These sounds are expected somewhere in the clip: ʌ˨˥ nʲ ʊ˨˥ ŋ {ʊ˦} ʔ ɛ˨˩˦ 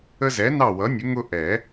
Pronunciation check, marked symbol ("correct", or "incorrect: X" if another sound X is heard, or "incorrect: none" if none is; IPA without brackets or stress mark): correct